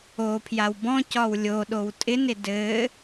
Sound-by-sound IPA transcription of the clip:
o pʰ j a w b ɔ̃ c ɒ w lʲ o ɗ o w tʼ ɪ n ɪ d ɘ

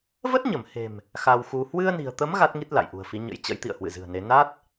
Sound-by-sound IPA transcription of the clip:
v ə˦˥ t̚ ɲ ə˧˩ m h e̤˨˩ m | x a˧ w x u˧ h w ɨ˧ ə̯ n i̤˨˩ ə̯ t̪ ə˨˦ m ɣ a˦˥ t̚ ŋ i˦˥ t̚ l a̰˧˨ j ʔ ṳ˨˩ ə̯ f i˨˦ ɲ ə̰˧˥ j t͡ɕ ə̰˧˥ j t̪ ḭ˧˨ ə̯ h w ɨ̰˧˨ z ɨ̤˨˩ ə̯ n e˨˦ n a˦˥ t̚

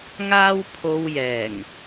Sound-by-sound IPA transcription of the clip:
ŋ aː˥ w pʰ o˧ w j ɛː˨˩ ŋ

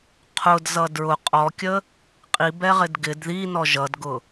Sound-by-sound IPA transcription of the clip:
qʰ ʊ d z ʌ d ɹ ʊ qʼ ɔ kʲ ə | qʼ i b ɛ ʁ ɪ d ɡ ɪ d ð i n ɔ ʒ ʌ d ɡ ʊ

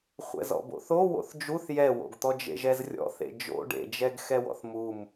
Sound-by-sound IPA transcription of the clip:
χʷ ɛ̰ z ɔ̰ b o̰ θ o w o̰ θ d͡ʒ u θ j ɛ w o̰ ɡ t̪ ɔ d͡ʒ ḛ ʒ ɛ z rʲ ɔ̰ θ ḛ d͡ʒ o̰ ɖ ḛ d͡ʒ ɛ ɡ x ɛ w ɔ̰ θ m u m

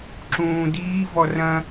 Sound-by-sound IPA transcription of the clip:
ǁ ũː d iː v ɔ r ɐ̃

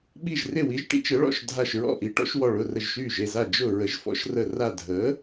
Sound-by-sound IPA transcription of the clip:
ɓ i˧˩ ʒ r ɪ˧˩ w i˩˥ ʒ ʈ ḭ˩˥ t͡ʃ ə˩˥ ɭ ɔ̰˧˩ ʃ dʱ a˧˩ ʃ ɹ ɔ̰˧˩ ʔ i˩˥ ʈ ɔ̰˩˥ ʃ w ɔ˧˩ ɭ ʊ˧˩ r ə˧˩ ʒ ʃ yː˧˩ ʒ e˧˩ z a˧˩ d͡ʒ ʊ˧˩ ɹ ə˩˥ ʒ f ɔ̰˩˥ ʃ r ə˧˩ r a˧˩ dʱ əː˩˥

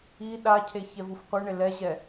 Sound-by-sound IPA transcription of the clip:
i ɗ a cʰ e ç ɛ v u f qʷ ɯ ɳ e l ɛ ʑ ɛ

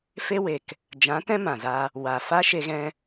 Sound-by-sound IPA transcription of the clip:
f e˦ w e˨ k | d͡ʒ ã˨˦ t ɛ̃˦ m ã˨ z a˧ | w a˨ f a˦ ʃ e˧ ɣ ɛ̃˧

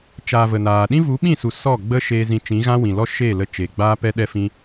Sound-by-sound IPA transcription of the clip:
t͡ʃ aː˨ v ə˨ n aː˨ ɗ ĩ˦ v u˨˦ ɓ ĩ˦˨ s u˨ s ɔ˦˨ ɡ͡b ə˦ ʃ eː˧ z ĩ˧ t͡ʃ ĩ˨˦ ɣ ã˦ w ĩ˨ l ɔ˦ ʃ eː˦˨ l ə˧ t͡ʃ eː˨ ɡ͡b aː˦ p ɛ˦ ɗ ɛ˦ f ĩ˦

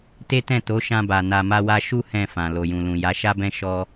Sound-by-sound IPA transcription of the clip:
t e˦ t ɛ̃˦˨ t o˨˦ ʃ ã˧ b a˨ n a˧ m a˦ w a˦ ʃ u˦ h ɛ̃˦˨ f ã˨ l o˨ j ũ˨ l ũ˨ j a˨˦ ʃ a˦ b ɛ̃˦ ʃ ɔ˦

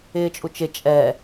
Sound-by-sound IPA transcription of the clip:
ɪː t͡ʃʼ u t͡ʃ ɪ t͡ʃʼ ɛ

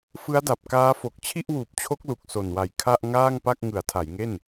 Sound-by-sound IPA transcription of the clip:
f ɯ˦˥ a̯ d a˨˩ p̚ k aː˦˥ f o˨˩ k̚ t͡ɕʰ i˥˩ ʔ w uː˨˩ p̚ t͡ɕʰ o˦˥ k̚ l u˨˩ k̚ s o˨˩ n w a˨˩ j kʰ a˥˩ ʔ ŋ aː˥˩ ŋ p a˥˩ k̚ ŋ ɯ˩˦ a̯ tʰ a˩˦ j ŋ e˥˩ n

